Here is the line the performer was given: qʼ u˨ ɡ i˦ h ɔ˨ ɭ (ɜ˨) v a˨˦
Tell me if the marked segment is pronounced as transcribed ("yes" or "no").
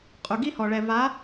no